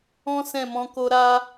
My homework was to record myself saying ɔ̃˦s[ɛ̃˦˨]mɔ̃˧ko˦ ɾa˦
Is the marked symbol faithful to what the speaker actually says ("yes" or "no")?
yes